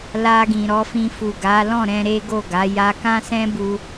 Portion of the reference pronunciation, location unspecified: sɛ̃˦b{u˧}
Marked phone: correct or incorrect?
correct